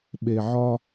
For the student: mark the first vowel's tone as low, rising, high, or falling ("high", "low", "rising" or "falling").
low